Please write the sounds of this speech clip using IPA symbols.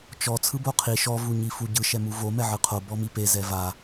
t͡ʃ ɔ t͡sʰ ɯ b o qʰ i ʃ ɔ v u ɲ i f u ɟ ɯ ʃ ɛ m u v o m ɛ ʕ ɯ qʰ o b ɔ m i p e z ɛ v a

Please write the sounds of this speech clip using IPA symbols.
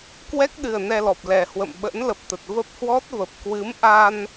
k w ɛ˦˥ k̚ ɗ ɨ˨˩ ə̯ n ɛ˧ l ɔ˨˩ p̚ l ɛ˨˩ h w ə̰˧˨ m ɓ ə̰˧˥ n l ə˨˩ p̚ t̪ ə˨˩ t̚ v ə˦˥ p̚ h w ɔ˦˥ t̚ v ə˨˩ p̚ k w ɨ˨˦ m ʔ a˧ n

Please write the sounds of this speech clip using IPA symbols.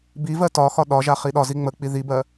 b i v ɜ t ɒ x ɒ ɗ ɒ ʒ a χ i ɗ ɒ z i ŋ͡m ə k͡p i ð i b ɜ

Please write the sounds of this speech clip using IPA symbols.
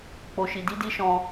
k͡p o˧ ʃ i˧ d i˧ d i˧ ʃ ɔ̃˧

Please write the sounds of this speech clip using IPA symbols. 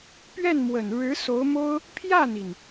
p ɥ ɛ˥˩ n m w ə˨˩ n ɻ ɻ̩˧˥ s o˧˥ ʊ̯ m o˥ ʊ̯ | pʰ j ä˥˩ n̪ i˩ n

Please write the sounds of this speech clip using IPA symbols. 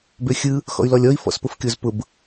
b ø xʲ ɯ | x ɔ̰ y̯ l ɔ lʲ ɔ i̯ f ɔ̰ s p ʊ f kʲ o z p ʊ b

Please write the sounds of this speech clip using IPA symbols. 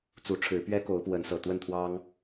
t͡s u˨˦ ʈ͡ʂʰ ɻ̩˨˦ p ɥ ɛ˦ k o˨˦ ʊ̯ p w ə˨˦ n s ɤ˨˩ t̪ w ə˥˨ n t̪ʰ w ɑ˦ ŋ

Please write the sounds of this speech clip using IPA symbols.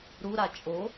ɾ u ɾ a t͡ʃʼ o

